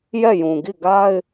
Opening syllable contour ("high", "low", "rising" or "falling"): falling